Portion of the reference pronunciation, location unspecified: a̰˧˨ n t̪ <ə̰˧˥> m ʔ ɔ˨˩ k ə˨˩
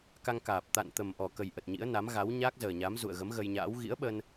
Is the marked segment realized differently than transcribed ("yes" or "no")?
yes